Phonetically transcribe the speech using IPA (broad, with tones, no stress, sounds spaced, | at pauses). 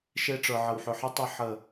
ʃ e˦ ʈ͡ʂ ə˞˨ ʕ ə˨ w ħ ʏ˨ ħ ɨ˦ tˤ ɨ˦˨ ħ ə˦˨